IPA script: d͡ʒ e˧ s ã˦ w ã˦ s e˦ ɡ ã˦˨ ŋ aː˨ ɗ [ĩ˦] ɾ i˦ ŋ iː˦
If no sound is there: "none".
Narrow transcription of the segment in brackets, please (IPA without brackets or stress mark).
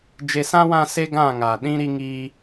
ĩ˦